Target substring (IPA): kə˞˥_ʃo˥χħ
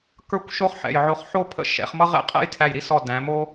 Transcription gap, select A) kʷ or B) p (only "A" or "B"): A